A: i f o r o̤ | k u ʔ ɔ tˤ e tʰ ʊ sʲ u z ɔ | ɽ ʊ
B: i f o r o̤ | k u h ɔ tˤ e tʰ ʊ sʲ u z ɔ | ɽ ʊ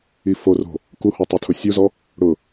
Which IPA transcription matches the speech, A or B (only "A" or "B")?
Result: B